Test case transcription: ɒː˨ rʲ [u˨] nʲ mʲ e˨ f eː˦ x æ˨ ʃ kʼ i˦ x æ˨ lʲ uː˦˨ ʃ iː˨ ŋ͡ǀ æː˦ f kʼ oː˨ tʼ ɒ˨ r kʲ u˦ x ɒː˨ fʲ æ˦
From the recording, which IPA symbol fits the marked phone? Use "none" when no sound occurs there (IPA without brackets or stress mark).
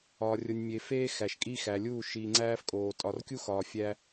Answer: o˨